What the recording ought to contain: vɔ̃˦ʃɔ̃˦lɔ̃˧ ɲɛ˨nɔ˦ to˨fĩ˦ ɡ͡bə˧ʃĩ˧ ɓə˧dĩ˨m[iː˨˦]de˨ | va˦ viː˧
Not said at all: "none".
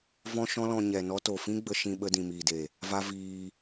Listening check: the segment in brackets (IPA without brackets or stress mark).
iː˨